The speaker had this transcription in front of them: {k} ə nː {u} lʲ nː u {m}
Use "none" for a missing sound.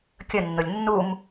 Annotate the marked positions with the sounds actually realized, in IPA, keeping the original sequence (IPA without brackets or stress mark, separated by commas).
kʲ, ʊ, m